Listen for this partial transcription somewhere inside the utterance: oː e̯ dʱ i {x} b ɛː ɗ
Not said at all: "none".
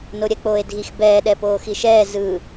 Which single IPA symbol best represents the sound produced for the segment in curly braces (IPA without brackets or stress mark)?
x